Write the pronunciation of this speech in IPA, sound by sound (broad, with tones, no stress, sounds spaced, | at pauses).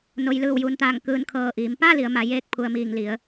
n o˩ j l ɯː˧˩ w j uː˩ n t̪ aː˧˩ ŋ k ɯː˧˩ n kʰ ɤː˧˩ ʔ iː˩˧ m p a˥˨ l i˩˧ ə̯ m a˩˧ j eː˧ k̚ pʰ u˩ ə̯ m iː˧˩ ŋ l i˩˧ ə̯